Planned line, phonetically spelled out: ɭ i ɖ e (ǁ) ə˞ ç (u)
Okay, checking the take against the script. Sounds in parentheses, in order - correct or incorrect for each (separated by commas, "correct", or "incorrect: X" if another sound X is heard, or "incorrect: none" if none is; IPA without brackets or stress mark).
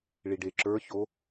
correct, incorrect: o